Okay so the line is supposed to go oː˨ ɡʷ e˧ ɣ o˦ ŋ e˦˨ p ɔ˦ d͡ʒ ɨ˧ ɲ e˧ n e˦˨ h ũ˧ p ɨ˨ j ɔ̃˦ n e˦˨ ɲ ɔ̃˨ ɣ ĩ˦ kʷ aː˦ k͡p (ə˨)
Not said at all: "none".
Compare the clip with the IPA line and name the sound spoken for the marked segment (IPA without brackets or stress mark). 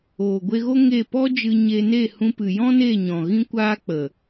ə˨